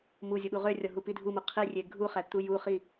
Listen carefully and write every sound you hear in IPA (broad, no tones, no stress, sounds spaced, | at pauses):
m u zʲ ʊ ɓ u ʁ ø rʲ ɒ ɦ u p i dʱ u m u qʰ i rʲ e ɡʱ u χ æ t̪ u j u χ i